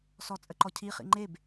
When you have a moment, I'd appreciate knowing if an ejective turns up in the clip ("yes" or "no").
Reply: yes